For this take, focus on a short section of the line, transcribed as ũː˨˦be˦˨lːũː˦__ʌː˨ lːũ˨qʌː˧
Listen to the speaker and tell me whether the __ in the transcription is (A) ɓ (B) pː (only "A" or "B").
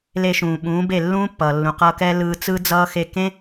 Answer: B